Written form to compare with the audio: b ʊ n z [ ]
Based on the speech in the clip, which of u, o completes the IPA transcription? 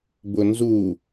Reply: u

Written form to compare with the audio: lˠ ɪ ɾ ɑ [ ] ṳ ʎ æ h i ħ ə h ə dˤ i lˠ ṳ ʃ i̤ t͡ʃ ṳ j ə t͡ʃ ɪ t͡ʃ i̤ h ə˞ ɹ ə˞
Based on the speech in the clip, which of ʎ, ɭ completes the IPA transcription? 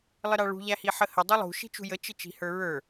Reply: ɭ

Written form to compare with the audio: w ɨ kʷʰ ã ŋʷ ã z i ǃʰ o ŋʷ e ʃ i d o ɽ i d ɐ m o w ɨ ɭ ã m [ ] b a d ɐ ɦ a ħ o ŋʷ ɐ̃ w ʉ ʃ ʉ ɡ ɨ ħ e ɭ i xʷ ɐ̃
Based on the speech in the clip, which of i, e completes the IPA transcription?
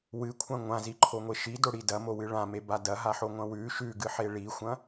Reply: e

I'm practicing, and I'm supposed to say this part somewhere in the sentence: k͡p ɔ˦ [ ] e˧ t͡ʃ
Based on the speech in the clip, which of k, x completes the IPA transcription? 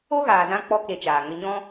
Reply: k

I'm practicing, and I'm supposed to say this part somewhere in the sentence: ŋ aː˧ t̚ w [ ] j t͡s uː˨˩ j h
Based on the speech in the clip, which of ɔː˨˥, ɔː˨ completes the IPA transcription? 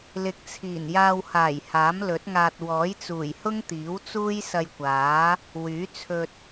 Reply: ɔː˨˥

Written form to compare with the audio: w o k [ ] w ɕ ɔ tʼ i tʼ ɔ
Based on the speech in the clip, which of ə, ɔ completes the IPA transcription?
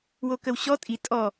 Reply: ə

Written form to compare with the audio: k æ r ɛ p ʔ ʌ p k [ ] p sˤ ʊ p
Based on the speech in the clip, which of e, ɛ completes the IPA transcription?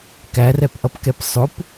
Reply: ɛ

